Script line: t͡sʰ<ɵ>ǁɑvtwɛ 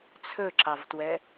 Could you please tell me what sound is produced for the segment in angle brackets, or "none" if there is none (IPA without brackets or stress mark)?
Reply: ɵ